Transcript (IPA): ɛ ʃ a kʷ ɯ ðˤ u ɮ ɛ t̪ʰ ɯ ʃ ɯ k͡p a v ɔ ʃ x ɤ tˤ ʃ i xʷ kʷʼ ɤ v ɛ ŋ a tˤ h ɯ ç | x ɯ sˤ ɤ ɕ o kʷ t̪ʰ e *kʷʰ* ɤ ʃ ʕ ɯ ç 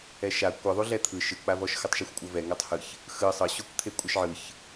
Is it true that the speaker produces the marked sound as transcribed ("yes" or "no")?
no